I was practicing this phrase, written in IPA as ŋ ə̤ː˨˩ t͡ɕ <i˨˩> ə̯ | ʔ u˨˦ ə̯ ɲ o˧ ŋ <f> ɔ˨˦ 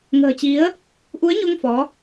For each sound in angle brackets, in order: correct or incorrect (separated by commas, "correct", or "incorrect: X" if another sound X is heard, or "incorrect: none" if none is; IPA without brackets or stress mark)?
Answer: incorrect: i˨˦, correct